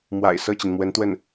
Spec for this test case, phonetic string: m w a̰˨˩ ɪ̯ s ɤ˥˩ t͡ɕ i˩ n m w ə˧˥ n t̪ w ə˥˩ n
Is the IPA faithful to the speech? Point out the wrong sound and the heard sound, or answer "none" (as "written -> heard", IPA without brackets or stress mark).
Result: none